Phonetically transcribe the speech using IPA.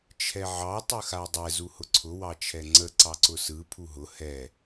t͡ʃʰɛʕɑ tˤɯxadˤɛ zuhʊǀʰʊ wɑt͡ʃʰɛŋ͡ǀə ǀɑǀʊsɯ pʰuɦʊ hɛ

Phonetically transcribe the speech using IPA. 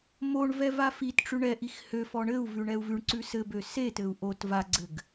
moɳvɛ vafitʈ͡ʂʉ ɳɛʔix høfɔ ɳɘu̯vʉ ɳɛu̯vʉɳǀʉ sɘbø setɘu̯ ʔot vaɡ͡ǀɘɡ

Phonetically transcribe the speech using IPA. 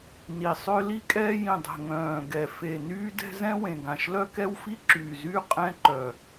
ni˨˩sˤø˦ li˦kʼɛː˦jĩ˨˩dˤɛ̤˨˩ ŋœ̃ː˨˩ɡɛ˨˩ fe˨˩nyː˦dɛ̤˦ zɛ̃˦wẽ˨˩ɡã˨˩ʃlœ˦ kɛ˦wfi˦ǁyː˨˩zyː˦ qʼɛ̃˦ǃœ˨˩

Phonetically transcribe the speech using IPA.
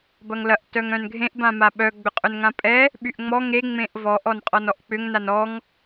bɐŋlɐʔ tœŋœ̃nɡʱẽʔ bãmaɓœ ɡ͡bʏqʼʊnŋãpʼɛ | ɓyʔŋ͡mɔ ŋe ŋ͡mẽʔvɔʔ ɔnqʼɔnɔʔk͡pʏŋ nanɔŋ

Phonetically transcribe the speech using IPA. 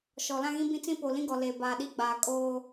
ʃɔ˨lã˦ɣĩ˦ bĩ˦t͡sĩ˦po˨ lĩ˦ɡɔ˨leː˨ baː˨ɗi˦ɡ͡baː˨ kʼoː˦

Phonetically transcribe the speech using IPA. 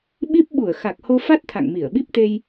ɓi˦˥p̚ɓu˧˩ə̯ xa˨˩k̚ho˧fa˦˥t̚ t̪ʰa̰˧˨ŋmi˧˩ə̯ɓi˦˥p̚t̪e˧j

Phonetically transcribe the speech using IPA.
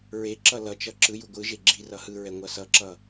ɹeǁʌ lʌt͡ʃʌ ǁɯju ɡʷɯʒe ɡ͡ǁi rʌhɯɹɛ ŋʷʌsʌǁʌ

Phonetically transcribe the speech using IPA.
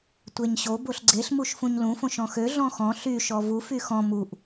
tʷeɲɕo boɬɡ͡ǀeɬ muʃfũɲlũ fõʃɔ̃xø ɮɔ̃xɔ̃ ɬy ʃɔvu fyxɔ̃ muʔ

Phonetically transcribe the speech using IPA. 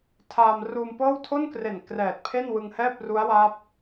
tʰaː˧mruː˧mpɤː˥˩w tʰo˥˩nkre˨˩n krɛː˨˩t̚pʰe˥˩nwɯ˧ŋhɛː˥˩p̚ ru˦˥a̯waː˦˥p̚

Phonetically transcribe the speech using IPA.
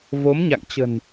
vo˨˦mɲa̰˧˨ŋt͡ɕə̤˨˩n

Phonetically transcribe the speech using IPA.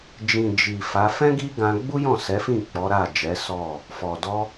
d͡ʒĩ˨ d͡ʒi˨ fa˨˦ fɛ̃˦ ɡi˦ɡã˧ ɡ͡bu˦jɔ̃˦˨sɛ˨˦fĩ˦˨ k͡pɔ˨˦ɾa˦˨ d͡ʒɛ˨˦sɔ˦˨ | fɔ˨dɔ˧

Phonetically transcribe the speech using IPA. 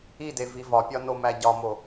ide vivɒpʲɒ nomæɟɒmo

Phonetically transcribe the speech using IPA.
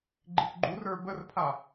ɡ͡ǃikɡ͡ǃurə˞ bərpʰa

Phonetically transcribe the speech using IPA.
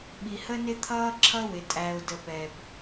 ɓi˨hə˦nɪ˦ t̪ʰʌː˦ǁʰʌ˦wɪ˨tʼæ˨ʊ̯ də˨pɛ˨b

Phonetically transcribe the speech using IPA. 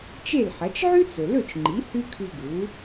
t͡ʃe˥˩lħɐ˩˥t͡ʃ ʕʉ˥t͡sɵ˩lɵ˥˩t͡ʃŋ͡ǃi˩˥ hʉ˥kʰʉ˧ɡu˩˥

